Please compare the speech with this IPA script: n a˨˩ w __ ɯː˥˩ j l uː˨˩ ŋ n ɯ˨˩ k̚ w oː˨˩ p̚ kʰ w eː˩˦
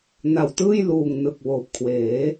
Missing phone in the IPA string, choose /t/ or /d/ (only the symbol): t